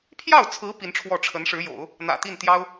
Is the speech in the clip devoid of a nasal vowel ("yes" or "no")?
yes